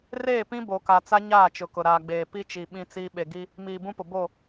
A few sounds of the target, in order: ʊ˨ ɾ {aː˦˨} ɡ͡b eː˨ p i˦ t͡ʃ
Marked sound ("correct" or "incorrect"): incorrect